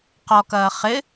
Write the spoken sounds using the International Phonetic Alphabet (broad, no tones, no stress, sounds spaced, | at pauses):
q ɔ k ɐː χ ɪ